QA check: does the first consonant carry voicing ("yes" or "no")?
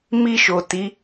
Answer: yes